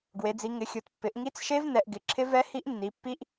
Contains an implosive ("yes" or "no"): no